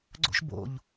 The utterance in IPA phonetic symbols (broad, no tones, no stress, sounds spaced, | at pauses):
ɡ͡ǀ o̰ ʃ b o̰ ʎ